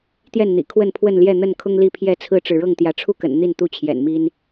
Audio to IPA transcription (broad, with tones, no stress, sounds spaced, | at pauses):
t̪ j ɛ˥˨ n n̪ ḭ˨˩ kʰ w ə˥˨ n pʰ w ə˥˨ n l j ɛ˥˨ n̪ ə˥˨ n kʰ ʊ˦ ŋ l i˥˨ pʰ j ɛ˥˨ t͡sʰ ɹ̩˦ ʈ͡ʂ ɻ̩˨ ɻ ɤ˥˨ ŋ t̪ j ä˨˦ ʈ͡ʂʰ u˥˨ k ə̰˨˩ n n̪ i˥˨ n t̪ u˥˨ t͡ɕʰ j ɛ̰˨˩ n m i˦ n